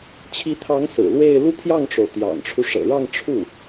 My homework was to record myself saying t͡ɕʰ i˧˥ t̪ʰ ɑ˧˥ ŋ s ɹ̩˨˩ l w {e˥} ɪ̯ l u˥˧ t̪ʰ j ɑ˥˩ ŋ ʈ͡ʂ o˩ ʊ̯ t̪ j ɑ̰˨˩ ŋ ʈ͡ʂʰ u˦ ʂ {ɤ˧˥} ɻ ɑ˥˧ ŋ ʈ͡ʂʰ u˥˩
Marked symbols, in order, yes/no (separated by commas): no, no